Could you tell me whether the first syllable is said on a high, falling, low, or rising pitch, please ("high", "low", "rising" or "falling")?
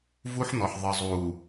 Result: high